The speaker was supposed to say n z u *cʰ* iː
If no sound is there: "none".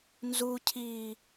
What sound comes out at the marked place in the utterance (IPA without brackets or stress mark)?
cʰ